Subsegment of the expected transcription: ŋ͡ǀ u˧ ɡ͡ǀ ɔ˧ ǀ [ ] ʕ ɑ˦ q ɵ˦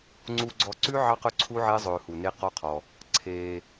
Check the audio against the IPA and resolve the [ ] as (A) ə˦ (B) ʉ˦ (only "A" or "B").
B